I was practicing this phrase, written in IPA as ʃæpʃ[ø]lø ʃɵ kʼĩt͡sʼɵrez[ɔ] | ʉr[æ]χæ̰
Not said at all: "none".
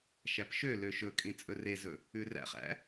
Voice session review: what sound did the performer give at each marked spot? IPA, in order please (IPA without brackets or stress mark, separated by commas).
ø, ɵ, æ̰